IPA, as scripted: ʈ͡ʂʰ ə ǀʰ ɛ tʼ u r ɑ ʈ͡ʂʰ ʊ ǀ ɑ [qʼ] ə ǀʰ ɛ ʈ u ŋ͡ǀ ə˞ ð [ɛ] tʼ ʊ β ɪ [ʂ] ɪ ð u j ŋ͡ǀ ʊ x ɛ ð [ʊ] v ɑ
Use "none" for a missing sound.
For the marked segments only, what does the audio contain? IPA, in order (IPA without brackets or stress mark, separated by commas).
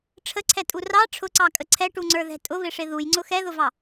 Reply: kʼ, ɛ̤, ʂ, ʊ